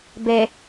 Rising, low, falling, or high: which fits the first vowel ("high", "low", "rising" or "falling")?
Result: low